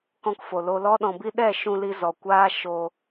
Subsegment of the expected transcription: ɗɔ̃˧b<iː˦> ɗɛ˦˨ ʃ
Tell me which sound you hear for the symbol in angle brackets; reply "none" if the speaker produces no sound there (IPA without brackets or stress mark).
i˦